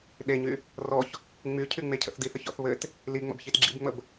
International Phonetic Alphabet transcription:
ɗeɲy | rɔç | ŋ͡my cʰyŋ͡mecʰə̰θdiθ əçɔ̰θβɘt | liŋ͡mə̰b çitɡ͡ǁḭbŋ͡məb

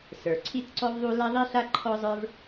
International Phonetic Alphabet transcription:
sə˞˩ ǀʰi˥tǀɔ˥vðˤu˥ la˥ðˤi˥ɬa˥ ǃʰɔ˥zˤə˞˥v

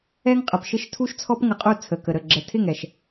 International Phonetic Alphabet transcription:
ɛ˦ŋqʼə˨pʃɪ˦ʃ tʰu˦ʃt͡sʰɔ˦pŋə˧ qʼu˦˨ t͡sʰə˨kə˨ɾə˦˨ ɡ͡ǁə˨tʰɪ˦˨ŋɛ˨ʃ

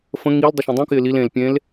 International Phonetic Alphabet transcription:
fə̃ ŋil dˤʊʃẽdˤũkɪː lil ẽl pʲẽl

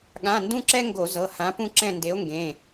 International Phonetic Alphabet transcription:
ɠã˩˧˩ndũ˦ǁɛ˦ ŋɡo˧˩˧zɤ˩˧˩ hã˨˥ pũ˦ǁɛ̃˦˨nde˨˥o̯ŋɡẽ˩˧˩

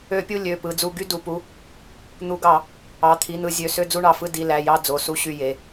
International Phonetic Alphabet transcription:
ø˧˩˧pʲu˦˨ lʲø˩˧˩ pɯ˩˧˩ d͡zu˦˨ ɡy˦˨du˩˧˩pu˩˧˩ | n̪u˩˧˩ɡɑ˧˩˧ | ɑ˩˧˩t̪ʰi˩˧˩n̪ɯ˧˩˧ zʲø˩˧˩ sø˦˨d͡zu˦˨ɳɑ˩˧˩fɯ˦˨ di˩˧˩læ˩˧˩jɑ˦˨ d͡zo˩˧˩su˦˨ɕy˦˨je˩˧˩

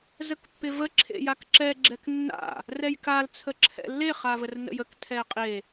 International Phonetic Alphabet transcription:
zəkpːɪvə ǁʰḛjakǁɛ ɡ͡ǁɛknːa̰ | rɛjkal t͡sʰəǁʰɛ̰lːe χavərnə̰jək tʰɛqʼe

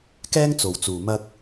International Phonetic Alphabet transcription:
kɛː˥ŋt͡so˨wt͡suː˨ mɐ˥k̚

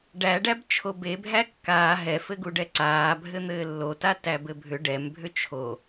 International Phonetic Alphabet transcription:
ɖæɖæb t͡ʃʰobebʱæ kːaː ɦɛfɘɡuɖɛ ǀaːbʱɘ n̪ɘːlːota tæbɘbʱʏ ɖɛmbʱʏ t͡ʃʰo

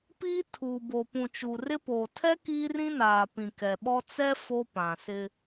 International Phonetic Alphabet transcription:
piː˦ tʰuː˨bo˨pũ˨ t͡ʃu˨rɪ˦ poː˨tʰɛ˦ kiː˦rĩ˦naː˨pĩ˨ kɛ˨ɓɔ˦ t͡sɛ˦ fo˦pã˨sɪ˦

